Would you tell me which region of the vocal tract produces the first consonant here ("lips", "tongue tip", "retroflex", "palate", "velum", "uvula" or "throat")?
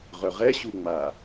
uvula